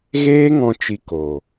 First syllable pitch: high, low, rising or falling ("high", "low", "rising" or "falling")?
high